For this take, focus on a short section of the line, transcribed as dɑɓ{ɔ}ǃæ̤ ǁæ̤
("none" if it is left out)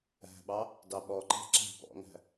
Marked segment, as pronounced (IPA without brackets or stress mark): ɔ